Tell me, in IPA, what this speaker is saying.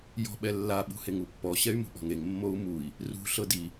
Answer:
j ɔ̤ ɓ ɛ lː a ɓ ṳ h e ŋ u pː ɔ ɕ ɛ y̯ m ṳ ɓ ɔ̤ ŋ e ŋ mː o u̯ m u i̯ | r ṳ ɬ ɤ d i

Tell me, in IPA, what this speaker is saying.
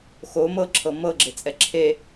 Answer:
x o m ɤ ǁʰ ɤ m ɤ ɡ͡ǁ e t͡sʼ ɛ ǁʰ e

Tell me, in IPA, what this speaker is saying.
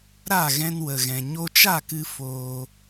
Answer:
ɾ a˦˨ ɣ ɛ̃˧ n w ə˨ ɣ ɛ̃˨ ɲ o˧ t͡ʃ a˦˨ k ɨ˧ f oː˧

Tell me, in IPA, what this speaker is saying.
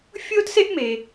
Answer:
fʲ oː˥ t s e˥ ʔ m e˩

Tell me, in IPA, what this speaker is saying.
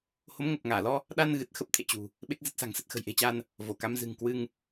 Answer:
h o˨˦ m ŋ o˨˩ p̚ ŋ aː˧˩ l ɔ˧ | ɗ a˧ n ɣ ɨ˨˩ t̚ x ə˦˥ p̚ t̪ʰ ḛ˧˨ t͡ɕ ṳ˨˩ | ɓ e˦˥ k̚ z ə˦˥ t̚ s a̤˨˩ ŋ s ə˦˥ t̚ x ə̤˨˩ j ʔ e̤˨˩ t͡ɕ a˧ n | v o˧˩ k a˨˦ m z ɨ̤˨˩ ŋ k w ɨ˧ ŋ

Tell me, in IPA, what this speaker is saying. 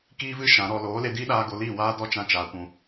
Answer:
k iː˦ v ɨ˦ ʃ ã˨˦ ɾ ɔ˧ l oː˨˦ l e˧ d iː˦ ɗ aː˧ ɡ o˧ l iː˦˨ w aː˦ d ɔ˦ t͡ʃ ã˧ t͡ʃ aː˨ kʷ ũ˨

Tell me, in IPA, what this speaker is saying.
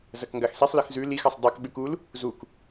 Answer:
z ɐ k ŋ ɡ a x s i sˤ l ɨ x z ʉ l i x ɐ sˤ dˤ e k ɓ ʉ k u l | z u k

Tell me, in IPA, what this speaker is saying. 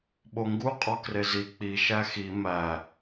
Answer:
ɓ o ŋ ɡ u qʼ ɒ k r e z i k͡p i ʃ æ x i m æ

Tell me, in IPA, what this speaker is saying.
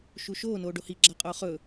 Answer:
ʃ u ʃ oː n oː ɖ o h i ɡ͡ǁ a qʼ oː χ ɵ

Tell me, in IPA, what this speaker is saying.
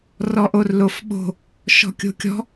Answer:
r ɔ ʔ o r l o f ɓ o̤ | ʃ ɔ̤ kʲ o̤ kʲ ɔ̤

